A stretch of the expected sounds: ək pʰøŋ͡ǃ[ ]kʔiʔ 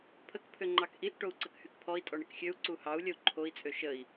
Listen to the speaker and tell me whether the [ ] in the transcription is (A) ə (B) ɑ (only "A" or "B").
B